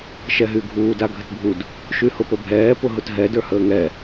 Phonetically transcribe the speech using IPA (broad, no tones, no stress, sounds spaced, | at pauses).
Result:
ʃ ɛ ɦ y ɡʱ uː d a ɡʱ ə t bʱ u d | ʃ y h ʊ p ə bʱ ɛː p ʊ ɦ ʊ t ɦ ɛ d ə˞ h əː ŋ ɛ